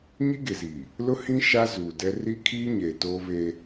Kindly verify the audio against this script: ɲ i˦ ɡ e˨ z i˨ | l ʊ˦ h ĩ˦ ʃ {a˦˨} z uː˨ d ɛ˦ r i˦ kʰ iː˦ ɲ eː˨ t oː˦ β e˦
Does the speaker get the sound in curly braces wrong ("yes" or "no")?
yes